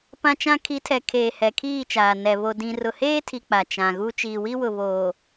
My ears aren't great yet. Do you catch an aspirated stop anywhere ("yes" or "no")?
yes